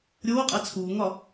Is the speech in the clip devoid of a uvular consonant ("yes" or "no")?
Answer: no